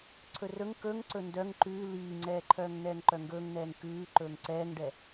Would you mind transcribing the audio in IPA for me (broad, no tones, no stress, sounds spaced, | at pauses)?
ǀʰ ɵ r ɵ ŋ k ɵ ŋ ǀ ɵ n d œ ŋ ǃ ʉː l iː ŋ͡ǀ ɛː ǃʰ œː ŋ n ɛː ŋ ǃ œ ŋ ɡ ɵː ŋ n̪ ɛː ŋ k ʉː ǃ ɵː ŋ ǀ ɛː ŋ ɖ ɛ